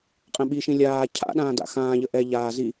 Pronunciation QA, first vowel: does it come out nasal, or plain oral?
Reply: nasal